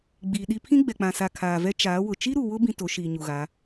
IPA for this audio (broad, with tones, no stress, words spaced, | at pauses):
ɡ͡biː˨ɗi˦ pʰĩ˦ɡ͡bɛ˨k͡pã˨sa˨ kʰaː˨vɛ˦ t͡ʃaː˨˦ wʊ˨ t͡ʃi˦ɾu˨wʊ˦ bĩ˦to˨˦ʃiː˨ ɲu˨ɣa˨˦